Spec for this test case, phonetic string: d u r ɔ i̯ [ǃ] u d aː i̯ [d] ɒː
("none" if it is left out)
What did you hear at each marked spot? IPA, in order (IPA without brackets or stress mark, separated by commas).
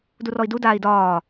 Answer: d, d